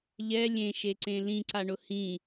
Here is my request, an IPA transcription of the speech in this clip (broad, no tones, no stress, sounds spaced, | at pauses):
ʎ ɛ lʲ ẽ ʃ e ǀ ẽ l ĩ ǀ a ɳ ʊ h ĩ